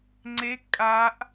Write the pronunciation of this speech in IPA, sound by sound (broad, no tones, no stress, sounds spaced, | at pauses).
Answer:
ŋ͡ǀ e kʼ a ʔ